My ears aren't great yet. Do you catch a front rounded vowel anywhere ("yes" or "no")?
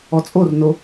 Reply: no